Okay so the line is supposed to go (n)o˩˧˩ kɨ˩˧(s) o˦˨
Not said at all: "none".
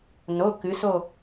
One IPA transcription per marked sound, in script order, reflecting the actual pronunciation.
n, s

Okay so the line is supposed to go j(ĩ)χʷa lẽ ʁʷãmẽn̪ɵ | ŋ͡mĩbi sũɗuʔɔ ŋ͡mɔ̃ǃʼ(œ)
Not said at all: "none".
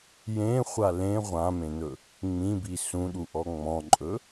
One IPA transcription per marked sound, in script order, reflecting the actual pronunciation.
ẽ, ɵ

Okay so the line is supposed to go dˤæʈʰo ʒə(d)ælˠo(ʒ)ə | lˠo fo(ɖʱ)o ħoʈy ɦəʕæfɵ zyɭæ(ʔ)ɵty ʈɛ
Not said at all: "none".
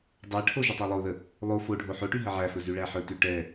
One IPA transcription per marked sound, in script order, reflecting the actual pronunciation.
tˤ, ð, ɖʱ, ħ

